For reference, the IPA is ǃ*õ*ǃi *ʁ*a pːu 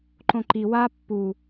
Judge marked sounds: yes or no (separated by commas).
yes, no